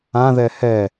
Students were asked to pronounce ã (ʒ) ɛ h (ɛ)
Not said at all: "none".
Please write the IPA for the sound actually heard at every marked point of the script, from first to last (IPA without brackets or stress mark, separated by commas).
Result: ð, ɛ